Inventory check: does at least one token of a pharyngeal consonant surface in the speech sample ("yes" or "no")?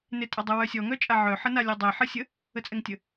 yes